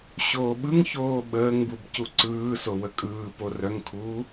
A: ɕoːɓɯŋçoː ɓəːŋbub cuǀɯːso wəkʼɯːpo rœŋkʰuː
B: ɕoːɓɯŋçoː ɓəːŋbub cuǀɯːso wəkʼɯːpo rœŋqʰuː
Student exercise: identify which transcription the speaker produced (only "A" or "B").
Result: A